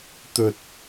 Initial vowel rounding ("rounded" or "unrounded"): rounded